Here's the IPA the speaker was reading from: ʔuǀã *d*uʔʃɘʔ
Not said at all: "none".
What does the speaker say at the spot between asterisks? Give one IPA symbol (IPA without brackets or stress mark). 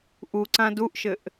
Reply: d